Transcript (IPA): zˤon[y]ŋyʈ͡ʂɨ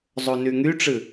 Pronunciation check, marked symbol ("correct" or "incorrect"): correct